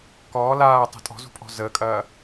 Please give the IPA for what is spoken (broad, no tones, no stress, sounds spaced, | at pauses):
k ɔː l aː tˤ ə̤ tʼ ɔ̤ z ṳ pʼ ɔ̤ z əː kʼ ɐː